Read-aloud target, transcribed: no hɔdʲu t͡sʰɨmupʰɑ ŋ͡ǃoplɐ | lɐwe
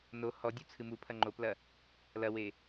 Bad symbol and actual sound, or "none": ɑ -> ɐ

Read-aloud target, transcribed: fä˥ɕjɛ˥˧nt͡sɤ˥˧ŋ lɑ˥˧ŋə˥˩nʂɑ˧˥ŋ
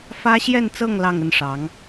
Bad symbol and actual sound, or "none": none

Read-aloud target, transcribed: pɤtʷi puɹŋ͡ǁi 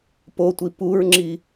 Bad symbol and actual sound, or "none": ɤ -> o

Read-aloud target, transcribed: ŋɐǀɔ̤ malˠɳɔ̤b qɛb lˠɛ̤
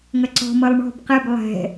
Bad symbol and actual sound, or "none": a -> ʌ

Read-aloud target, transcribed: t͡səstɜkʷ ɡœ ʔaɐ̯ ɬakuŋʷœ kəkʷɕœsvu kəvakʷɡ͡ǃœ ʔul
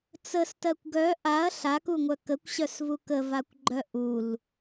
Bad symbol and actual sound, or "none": none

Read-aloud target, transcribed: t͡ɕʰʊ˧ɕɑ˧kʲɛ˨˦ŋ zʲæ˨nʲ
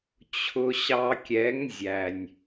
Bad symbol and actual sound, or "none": none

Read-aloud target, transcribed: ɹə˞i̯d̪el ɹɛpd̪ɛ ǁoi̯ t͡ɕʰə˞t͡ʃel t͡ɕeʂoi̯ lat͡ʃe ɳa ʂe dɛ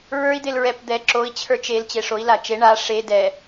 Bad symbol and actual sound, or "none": none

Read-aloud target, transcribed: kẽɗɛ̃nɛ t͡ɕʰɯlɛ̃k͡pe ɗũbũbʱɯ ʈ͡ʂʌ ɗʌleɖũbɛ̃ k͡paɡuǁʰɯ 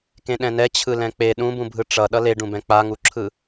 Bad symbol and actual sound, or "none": ɡ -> ŋ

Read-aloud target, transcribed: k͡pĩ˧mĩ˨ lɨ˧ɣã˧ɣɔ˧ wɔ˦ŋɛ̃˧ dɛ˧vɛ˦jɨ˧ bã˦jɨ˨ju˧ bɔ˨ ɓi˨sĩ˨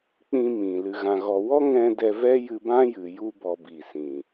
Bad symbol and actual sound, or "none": ɓ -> b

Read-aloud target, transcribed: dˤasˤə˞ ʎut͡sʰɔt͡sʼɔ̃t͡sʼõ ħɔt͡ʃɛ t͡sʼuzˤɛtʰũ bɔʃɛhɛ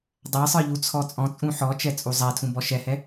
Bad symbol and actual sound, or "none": õ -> ũ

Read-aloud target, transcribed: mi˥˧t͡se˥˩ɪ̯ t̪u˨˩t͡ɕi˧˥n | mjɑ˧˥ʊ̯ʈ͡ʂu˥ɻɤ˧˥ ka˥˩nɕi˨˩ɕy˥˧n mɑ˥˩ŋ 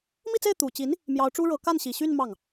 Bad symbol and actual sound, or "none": none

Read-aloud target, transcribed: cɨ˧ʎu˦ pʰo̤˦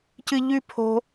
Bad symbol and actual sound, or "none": u˦ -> ʉ˦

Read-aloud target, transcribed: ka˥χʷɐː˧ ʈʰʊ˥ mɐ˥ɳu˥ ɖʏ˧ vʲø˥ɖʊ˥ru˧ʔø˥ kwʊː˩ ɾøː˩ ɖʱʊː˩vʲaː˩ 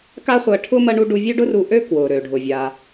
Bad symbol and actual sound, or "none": ʏ˧ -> u˧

